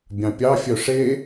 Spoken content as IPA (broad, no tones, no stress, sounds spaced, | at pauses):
bʲ ɑ̃ pʲ ɑ fʲ œ ʂ e